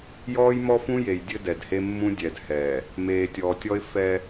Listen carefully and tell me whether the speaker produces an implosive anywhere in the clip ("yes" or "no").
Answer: no